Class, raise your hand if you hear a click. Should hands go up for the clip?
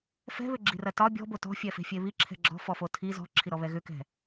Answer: yes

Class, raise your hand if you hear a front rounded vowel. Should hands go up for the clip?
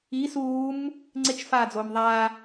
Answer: no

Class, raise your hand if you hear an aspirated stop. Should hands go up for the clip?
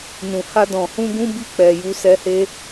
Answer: no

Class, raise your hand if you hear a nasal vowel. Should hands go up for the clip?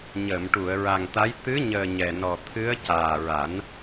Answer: no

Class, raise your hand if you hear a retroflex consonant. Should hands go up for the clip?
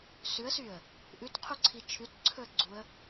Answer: no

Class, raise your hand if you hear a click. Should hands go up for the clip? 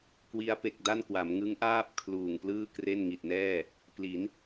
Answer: no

